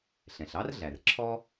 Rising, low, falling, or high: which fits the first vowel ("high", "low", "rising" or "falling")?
low